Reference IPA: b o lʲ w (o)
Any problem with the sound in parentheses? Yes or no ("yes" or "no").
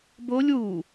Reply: yes